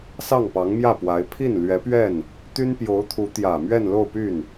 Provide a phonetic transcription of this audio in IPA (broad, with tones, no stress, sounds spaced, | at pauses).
s ɑ˥˩ ŋ p ɑ˧˥ ŋ m j ä˥˩ p w a˧˥ ɪ̯ pʰ i˥˩ n l ɥ ɛ˧˥ p ɥ ɛ˥˩ n | t̪ y˥ n p j o˧˥ ʊ̯ t̪ʰ u˧˥ t̪ j ä˨˩ m ɥ ɛ˥˧ n l o˥˧ ʊ̯ p y˥˩ n